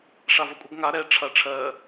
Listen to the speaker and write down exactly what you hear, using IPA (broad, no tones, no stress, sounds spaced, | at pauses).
ʂ a v ʌ kʷʼ ɐ ɡ ŋ a ɾ ɛ ʈ͡ʂʰ ɐ ʈ͡ʂʰ ɜ